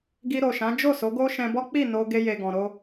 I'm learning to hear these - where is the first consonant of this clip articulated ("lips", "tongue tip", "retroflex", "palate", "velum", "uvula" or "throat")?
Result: velum